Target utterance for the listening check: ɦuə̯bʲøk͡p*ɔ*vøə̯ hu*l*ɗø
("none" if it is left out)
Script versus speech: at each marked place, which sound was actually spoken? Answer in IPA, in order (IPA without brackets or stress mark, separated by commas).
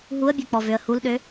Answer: ɔ, l